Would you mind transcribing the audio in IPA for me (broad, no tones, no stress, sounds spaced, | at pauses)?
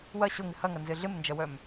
w ɐ ɕ ʊ ŋ ɪ h ɐ ŋ ɐ n z ɪ ɮ ɪ m n d͡ʒ ɐ w œ m